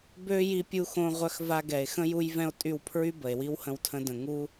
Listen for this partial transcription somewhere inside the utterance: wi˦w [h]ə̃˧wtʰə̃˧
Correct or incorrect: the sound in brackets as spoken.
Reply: correct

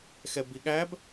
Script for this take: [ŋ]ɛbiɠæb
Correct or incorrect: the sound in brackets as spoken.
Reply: incorrect: x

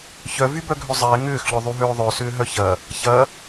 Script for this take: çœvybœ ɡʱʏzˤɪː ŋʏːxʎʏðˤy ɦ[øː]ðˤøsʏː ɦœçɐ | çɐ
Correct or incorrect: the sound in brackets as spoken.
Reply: correct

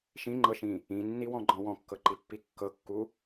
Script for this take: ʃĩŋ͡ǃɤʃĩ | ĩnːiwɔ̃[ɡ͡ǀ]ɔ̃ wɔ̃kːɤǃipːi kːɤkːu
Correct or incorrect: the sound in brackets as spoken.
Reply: incorrect: ɡ͡ǃ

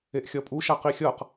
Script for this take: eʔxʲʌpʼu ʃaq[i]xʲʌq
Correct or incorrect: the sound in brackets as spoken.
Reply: correct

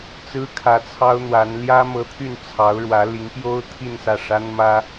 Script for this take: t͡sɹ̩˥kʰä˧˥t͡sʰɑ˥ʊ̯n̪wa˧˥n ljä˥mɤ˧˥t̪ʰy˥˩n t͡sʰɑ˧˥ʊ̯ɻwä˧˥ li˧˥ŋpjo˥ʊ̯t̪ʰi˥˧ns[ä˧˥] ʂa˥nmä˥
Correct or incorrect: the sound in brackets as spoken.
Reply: incorrect: ä˥˩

